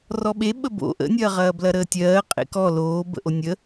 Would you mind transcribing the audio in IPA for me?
rɔɓe ɓəbo̰ ʔə̰nʲɐːʁɐː blɐɾəːtʲɜː qʼḛkɔ loːbə̰ʔo nʲə

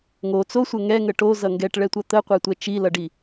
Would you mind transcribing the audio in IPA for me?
ŋo t͡sosʷə ŋɛŋə ʈozʌ ŋɡɛʈɭɛtʷʌ t̪əqʷɛtʷɛ t͡ʃilʌɖi

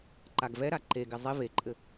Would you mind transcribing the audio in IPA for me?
ǃaɡvɛɾa ǃeɡɪ zˤɪ veǃʼɘ

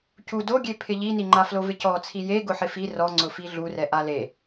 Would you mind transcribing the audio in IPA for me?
cu doɡʲepʰɪ ʎiniŋ͡ǃaflo vɪcɔt͡sʰi je ɡʊħɪfi rɔŋ͡ǀʊfi ɮurɛʔa le

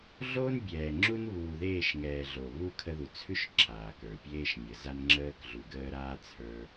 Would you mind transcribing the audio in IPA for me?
ɮo˦nbʲɛː˨ŋ͡ǁu˦n βuː˨ðeː˦˨ʃŋɛː˨ ɮo˨βu˦ kʰə˦ðu˨ t͡sʰʉ˦ʃ ǁʰaː˨kə˞˨ pʲeː˦ʃmʲə˨za˦n ŋ͡ǁəː˦k ɮu˨ɡəː˦ɾaː˦ t͡sʰə˞˦

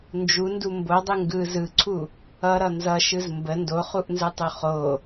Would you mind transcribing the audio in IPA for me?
nd͡ʒundu mbodˤɯ ŋɡɯ zɯǀʰu | ʌɾʌ nzʌʃɯz mbə ndoχuʔnzɯtˤu χo

